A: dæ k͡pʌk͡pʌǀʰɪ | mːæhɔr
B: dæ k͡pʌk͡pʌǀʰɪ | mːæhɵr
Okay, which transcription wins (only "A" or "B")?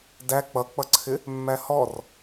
A